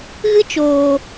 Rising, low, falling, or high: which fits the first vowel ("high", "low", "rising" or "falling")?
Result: high